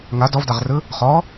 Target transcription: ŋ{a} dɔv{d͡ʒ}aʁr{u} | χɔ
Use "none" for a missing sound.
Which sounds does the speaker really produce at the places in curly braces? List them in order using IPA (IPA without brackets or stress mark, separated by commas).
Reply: a, d, ɯ